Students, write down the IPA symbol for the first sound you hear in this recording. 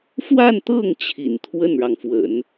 f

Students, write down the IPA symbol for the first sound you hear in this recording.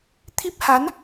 t̪ʰ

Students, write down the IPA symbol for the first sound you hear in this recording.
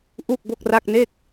ʔ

